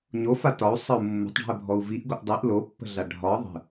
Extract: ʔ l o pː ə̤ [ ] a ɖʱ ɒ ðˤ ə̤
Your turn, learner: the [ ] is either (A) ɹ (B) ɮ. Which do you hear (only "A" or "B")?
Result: B